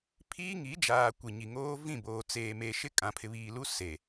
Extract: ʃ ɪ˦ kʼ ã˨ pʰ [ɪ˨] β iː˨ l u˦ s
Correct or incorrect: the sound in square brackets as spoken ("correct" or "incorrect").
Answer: correct